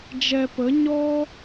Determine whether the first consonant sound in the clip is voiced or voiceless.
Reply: voiced